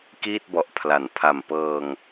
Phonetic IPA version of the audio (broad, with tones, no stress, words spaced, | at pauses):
kiː˥˩t̚bɔ˨˩ʔpʰla˩˦n pʰa˨˩mpɤː˧ŋ